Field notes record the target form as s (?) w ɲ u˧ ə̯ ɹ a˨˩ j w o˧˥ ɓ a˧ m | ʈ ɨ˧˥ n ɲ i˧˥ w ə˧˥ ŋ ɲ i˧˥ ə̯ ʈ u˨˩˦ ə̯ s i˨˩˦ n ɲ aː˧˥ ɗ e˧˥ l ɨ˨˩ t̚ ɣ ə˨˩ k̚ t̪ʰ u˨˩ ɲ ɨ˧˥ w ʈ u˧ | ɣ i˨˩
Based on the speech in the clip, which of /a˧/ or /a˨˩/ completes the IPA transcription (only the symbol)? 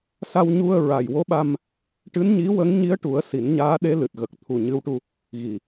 a˧